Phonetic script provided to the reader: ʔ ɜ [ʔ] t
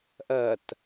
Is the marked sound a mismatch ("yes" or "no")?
yes